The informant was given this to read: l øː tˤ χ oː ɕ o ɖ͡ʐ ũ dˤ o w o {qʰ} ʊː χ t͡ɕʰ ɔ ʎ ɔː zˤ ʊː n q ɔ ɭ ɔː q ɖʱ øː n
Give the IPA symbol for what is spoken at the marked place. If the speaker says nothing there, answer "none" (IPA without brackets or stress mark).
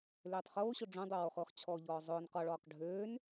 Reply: χ